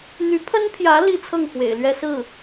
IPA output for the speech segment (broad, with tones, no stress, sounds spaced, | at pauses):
n̪ y˧˥ pʰ ə˥ n pʰ j ä˧˥ l i˥ t͡sʰ ɤ˥˩ ŋ x w ḛ˨˩ ɪ̯ l ɥ ɛ˥ s ɹ̩˥˩